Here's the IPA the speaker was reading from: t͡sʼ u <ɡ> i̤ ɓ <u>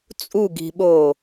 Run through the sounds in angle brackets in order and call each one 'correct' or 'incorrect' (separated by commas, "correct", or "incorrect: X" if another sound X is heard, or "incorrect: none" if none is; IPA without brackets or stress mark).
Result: correct, incorrect: o